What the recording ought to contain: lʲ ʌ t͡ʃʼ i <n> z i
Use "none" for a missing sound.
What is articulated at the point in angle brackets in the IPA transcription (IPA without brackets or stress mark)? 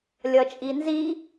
n